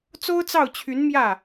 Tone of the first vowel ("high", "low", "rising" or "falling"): high